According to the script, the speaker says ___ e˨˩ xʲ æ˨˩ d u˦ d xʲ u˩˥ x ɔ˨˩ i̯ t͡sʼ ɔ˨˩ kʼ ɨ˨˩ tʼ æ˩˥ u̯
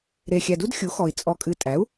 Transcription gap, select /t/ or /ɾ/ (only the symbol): ɾ